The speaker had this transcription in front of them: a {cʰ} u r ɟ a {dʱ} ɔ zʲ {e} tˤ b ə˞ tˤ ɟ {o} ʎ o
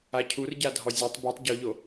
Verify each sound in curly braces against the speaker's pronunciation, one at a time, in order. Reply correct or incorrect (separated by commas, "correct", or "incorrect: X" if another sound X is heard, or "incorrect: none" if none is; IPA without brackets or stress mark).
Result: correct, correct, correct, correct